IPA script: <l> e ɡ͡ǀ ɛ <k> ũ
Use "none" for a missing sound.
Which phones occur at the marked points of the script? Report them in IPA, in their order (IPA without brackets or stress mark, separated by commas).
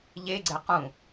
ʎ, q